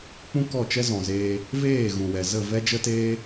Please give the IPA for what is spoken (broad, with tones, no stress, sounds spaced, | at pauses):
k͡p ũ˦ k ɔ˦˨ t͡ʃ ɛ˦ z ɔ̃˨ z eː˧ | v eː˦˨ ɣ ũ˨ w ɛ˨ z ə˦˨ v ɛ˦ d͡ʒ ə˦ t eː˦